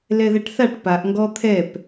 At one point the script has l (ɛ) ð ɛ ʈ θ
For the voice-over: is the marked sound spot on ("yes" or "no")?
yes